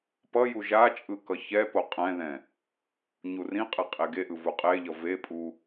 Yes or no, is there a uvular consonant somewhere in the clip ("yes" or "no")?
yes